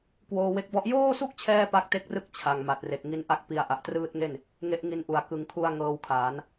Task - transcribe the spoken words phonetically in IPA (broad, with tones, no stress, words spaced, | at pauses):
kwoː˧we˦˥k̚bɔ˥˩ʔ joː˥˩su˥˩k̚t͡ɕʰɛː˧ pa˦˥k̚te˦˥k̚rɯ˥˩k̚ t͡ɕʰa˨˩ŋ ma˨˩t̚re˨˩k̚ ŋi˦˥nʔa˥˩k̚ pi˨˩a̯ ʔa˨˩ʔtrɯː˦˥t̚ŋe˥˩n | ŋe˦˥ʔŋi˦˥nʔu˨˩a̯ kɯ˨˩ŋkʰu˧a̯ ŋɤː˧wkʰaː˩˦n